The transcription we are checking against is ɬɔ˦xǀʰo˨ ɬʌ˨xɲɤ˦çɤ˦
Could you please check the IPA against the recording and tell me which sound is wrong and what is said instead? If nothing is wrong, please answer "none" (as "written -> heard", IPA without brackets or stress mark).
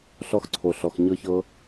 ʌ˨ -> ɔ˨